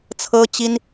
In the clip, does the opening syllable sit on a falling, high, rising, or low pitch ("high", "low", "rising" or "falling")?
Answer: high